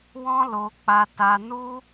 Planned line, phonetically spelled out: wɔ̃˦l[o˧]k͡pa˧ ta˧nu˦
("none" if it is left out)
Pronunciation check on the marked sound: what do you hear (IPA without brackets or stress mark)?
o˧